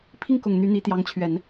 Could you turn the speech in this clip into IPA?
pʰ i˥˩ ŋ k ʊ˨˩ ŋ n̪ y˧˥ n̪ i˧˥ t̪ j ɑ˧˥ ŋ t͡ɕʰ ɥ ɛ˨˩˦ n

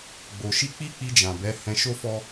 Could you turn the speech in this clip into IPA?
ɡ͡b o˨ ʃ i˧ k͡p i˦ k͡p i˧ d͡ʒ ã˨ b ɛ˨˦ h ɛ̃˧ ʃ o˦ f ɔ˦

